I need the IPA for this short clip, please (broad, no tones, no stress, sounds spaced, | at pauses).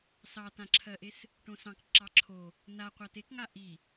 s ɑ t ã ǁʰ ɜ ʔ e s | ʈ õ s ɑ̃ k ǁ ɑ ǁʰ o | n a qʷ a t e k ŋ a ʔ i